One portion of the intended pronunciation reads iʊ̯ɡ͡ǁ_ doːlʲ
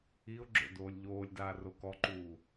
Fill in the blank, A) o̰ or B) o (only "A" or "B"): A